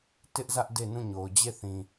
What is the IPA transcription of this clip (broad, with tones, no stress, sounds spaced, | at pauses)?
t ɪ˦ ʔ z ä˦ ʔ d e˦˨ n ũ˦˨ ɲ o˨ ʊ̯ d͡ʑ e˦˨ θ ĩ˨